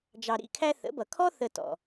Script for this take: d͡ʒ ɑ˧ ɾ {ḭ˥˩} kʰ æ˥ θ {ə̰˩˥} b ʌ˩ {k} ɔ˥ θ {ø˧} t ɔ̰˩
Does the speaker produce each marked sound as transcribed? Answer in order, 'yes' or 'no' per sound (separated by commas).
yes, yes, no, no